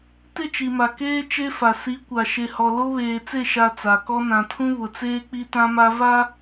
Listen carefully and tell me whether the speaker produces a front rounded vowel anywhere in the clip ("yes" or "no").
no